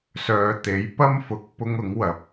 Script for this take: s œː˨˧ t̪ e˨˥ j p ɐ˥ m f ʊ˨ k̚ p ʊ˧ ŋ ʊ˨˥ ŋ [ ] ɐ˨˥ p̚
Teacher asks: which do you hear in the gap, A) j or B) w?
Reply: B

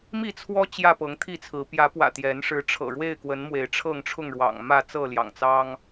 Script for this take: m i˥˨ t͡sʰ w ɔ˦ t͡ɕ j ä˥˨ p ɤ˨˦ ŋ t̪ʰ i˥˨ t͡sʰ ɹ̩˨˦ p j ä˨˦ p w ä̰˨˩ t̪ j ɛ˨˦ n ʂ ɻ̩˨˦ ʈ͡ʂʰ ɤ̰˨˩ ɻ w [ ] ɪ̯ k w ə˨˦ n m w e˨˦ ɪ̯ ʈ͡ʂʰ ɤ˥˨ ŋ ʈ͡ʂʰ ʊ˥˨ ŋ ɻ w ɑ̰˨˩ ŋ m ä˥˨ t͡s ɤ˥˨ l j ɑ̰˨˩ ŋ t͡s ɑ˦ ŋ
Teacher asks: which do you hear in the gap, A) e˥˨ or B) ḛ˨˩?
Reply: A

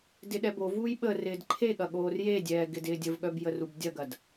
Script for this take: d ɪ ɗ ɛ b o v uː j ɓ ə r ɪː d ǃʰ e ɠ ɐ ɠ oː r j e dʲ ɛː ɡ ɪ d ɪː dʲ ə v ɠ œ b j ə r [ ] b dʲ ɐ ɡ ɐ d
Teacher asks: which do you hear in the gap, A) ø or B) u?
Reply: B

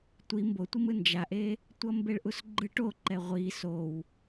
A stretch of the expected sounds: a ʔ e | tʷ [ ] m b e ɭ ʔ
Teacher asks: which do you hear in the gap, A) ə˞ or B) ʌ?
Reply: B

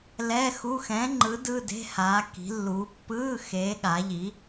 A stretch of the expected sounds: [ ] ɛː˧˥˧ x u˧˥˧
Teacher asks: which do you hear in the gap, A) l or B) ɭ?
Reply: A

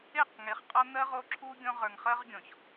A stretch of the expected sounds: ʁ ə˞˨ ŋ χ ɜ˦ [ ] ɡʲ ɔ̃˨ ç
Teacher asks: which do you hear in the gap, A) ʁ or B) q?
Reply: A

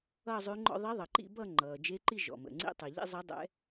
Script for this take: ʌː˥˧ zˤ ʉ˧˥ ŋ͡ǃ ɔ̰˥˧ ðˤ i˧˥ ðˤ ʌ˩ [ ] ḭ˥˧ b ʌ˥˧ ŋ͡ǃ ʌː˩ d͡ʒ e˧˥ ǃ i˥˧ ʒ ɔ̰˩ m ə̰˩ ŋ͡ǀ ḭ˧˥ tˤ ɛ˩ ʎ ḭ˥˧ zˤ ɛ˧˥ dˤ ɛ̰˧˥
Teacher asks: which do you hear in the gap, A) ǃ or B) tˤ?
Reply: A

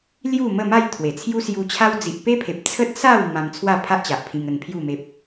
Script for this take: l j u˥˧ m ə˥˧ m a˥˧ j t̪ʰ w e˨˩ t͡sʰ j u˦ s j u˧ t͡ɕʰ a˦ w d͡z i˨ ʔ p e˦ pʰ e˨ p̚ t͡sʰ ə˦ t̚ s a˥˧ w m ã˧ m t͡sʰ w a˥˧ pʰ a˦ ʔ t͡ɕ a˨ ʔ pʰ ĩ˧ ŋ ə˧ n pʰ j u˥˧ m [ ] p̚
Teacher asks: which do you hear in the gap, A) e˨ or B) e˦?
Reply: B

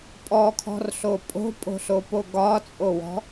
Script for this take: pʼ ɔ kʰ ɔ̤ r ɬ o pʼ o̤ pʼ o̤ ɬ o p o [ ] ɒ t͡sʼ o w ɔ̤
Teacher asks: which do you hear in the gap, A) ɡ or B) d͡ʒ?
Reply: A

